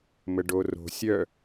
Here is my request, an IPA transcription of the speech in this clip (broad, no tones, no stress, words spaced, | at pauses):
məɖoro̤ sʲœ